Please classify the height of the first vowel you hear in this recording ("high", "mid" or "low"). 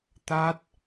low